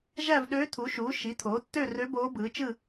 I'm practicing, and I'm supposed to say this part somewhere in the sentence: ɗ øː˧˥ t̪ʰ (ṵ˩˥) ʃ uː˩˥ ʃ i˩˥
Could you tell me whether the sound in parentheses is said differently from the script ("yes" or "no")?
yes